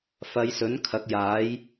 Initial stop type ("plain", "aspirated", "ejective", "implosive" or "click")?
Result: aspirated